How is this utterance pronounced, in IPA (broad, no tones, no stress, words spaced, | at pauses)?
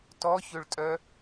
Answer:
tɔçøɭtʼœ